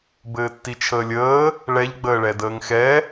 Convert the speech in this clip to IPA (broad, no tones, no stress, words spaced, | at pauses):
bɘːtːit͡ʃʰəːlʲəː | ɭɛʎ ɡ͡bəːɭɛdəːŋxɛ